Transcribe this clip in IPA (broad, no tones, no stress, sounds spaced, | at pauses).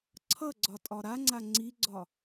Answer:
ǀʰ ʌ ɡ͡ǀ ɒ tʼ ɒ ɾ a ŋ͡ǀ a ŋ͡ǀ i ɡ͡ǀ ɒ